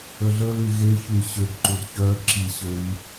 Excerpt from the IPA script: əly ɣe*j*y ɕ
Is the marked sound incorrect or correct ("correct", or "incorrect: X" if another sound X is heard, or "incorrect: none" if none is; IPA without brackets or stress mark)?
incorrect: ç